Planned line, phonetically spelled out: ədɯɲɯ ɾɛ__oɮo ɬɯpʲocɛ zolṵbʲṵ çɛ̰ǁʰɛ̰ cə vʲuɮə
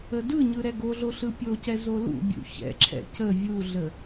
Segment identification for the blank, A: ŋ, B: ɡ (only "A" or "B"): B